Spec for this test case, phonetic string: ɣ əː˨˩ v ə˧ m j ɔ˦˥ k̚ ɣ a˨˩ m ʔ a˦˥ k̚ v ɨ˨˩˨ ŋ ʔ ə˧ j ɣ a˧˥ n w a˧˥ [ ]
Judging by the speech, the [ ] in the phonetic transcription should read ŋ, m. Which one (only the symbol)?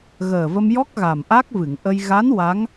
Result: ŋ